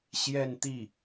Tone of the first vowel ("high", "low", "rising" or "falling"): falling